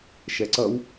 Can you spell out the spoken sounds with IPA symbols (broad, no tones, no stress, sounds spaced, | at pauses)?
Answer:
ʃ ɛ ǀ ʌ w